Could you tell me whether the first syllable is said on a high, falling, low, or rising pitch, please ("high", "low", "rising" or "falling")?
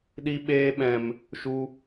high